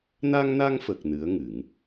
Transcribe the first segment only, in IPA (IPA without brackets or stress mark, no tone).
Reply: n